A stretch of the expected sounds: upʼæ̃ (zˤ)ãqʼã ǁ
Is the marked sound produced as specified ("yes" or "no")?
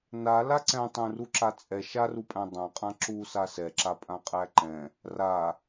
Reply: no